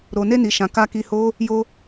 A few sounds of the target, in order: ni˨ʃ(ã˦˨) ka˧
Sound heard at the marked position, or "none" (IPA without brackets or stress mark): ã˨